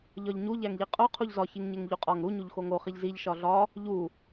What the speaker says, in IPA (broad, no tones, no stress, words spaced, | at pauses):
ʎɒʎɲu ʎæŋʎiqʼo qʰuʎzɒ çiŋɲeŋʎuqʼɒŋ ɾu ɲuʎxoŋo χiʎziʎ ʃɒɮɒ | ʎu